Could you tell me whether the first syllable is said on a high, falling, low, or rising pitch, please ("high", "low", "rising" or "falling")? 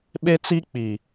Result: high